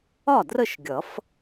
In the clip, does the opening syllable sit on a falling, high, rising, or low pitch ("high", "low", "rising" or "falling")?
falling